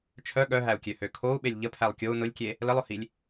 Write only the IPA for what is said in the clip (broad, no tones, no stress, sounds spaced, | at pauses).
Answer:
t͡ʃʰ œ ɠ œ ɦ æ u̯ kʲ ø h ø kʰ o u̯ ɓ e lʲ ʎ ə pʰ æ lˠ kʲ o u̯ n ʊ lʲ kʲ e | l ə lˠ ʊ h i lʲ